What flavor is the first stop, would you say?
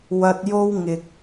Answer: plain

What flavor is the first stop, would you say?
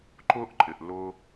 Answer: click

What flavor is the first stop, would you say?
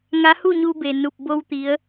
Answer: plain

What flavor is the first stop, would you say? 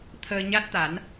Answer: aspirated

